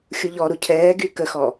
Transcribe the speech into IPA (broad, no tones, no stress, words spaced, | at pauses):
xʲuʎɔɾu cʰɛːɡy kəxɔ